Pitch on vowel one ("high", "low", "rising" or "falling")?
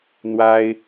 high